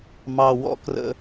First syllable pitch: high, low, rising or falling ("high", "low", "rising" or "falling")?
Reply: low